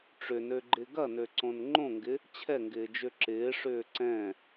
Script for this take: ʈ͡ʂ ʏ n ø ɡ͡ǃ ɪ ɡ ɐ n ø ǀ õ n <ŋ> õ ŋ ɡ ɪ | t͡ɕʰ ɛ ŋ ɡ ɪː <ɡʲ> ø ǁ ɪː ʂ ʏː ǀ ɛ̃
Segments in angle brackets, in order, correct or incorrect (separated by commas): incorrect, incorrect